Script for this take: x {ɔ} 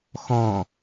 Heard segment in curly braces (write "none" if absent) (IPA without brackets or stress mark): ɔ̃